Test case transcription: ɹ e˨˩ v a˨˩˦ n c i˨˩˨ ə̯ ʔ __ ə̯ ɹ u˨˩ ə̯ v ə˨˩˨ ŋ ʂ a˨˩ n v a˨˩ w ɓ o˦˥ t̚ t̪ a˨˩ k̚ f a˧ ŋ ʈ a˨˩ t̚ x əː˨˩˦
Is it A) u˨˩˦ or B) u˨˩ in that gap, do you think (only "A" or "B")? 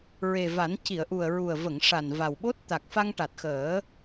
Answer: B